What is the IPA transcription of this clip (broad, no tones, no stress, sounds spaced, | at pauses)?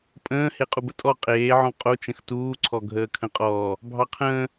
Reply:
pʼ ə̃ː h e qʼ u b ə tʼ ɔ qʼ eː ʕ ɔ̃ qʼ o t͡ʃ ə̃ x t uː ǀʰ ɔ ɡʱ əː kʰ ə̃ qʼ ɔː | bʱ ɑ qʰ ə̃ː